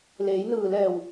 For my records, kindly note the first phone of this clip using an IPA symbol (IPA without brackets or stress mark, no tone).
l